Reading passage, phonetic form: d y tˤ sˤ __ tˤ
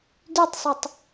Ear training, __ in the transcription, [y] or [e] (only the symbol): e